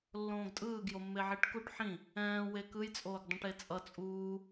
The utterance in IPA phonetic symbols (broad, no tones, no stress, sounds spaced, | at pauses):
lː õː ɡ tʼ ɯː ɡ j o mː e ʕ i ʈ k u ʈ ħ ĩ | ɛ̃ː w e k ɯ j t͡sʼ oː ɡ dˤ ũ ʈ e t͡sʼ ʌ t͡sʼ uː